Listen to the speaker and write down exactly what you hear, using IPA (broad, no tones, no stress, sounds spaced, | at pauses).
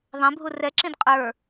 ðˤ ẽ bʱ u r ɛ ǁ ĩ d qʼ ə˞